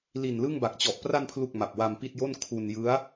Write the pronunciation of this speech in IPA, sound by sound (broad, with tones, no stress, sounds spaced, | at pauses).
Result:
l i˨˩ n l ɯ˥˩ ŋ b a˨˩ k̚ t͡ɕ ɔ˨˩ ʔ p r a˧ n pʰ l u˨˩ k̚ m a˨˩ p̚ w a˧ m p i˥˩ t̚ j o˥˩ n kʰ u˧ n j ɯ˦˥ a̯